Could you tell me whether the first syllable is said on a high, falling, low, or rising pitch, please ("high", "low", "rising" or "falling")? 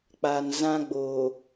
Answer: low